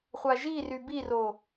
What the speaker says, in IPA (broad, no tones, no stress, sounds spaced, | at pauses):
χʷ a ʒ i r y b i r o